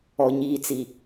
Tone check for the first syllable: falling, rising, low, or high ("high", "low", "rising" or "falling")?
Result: low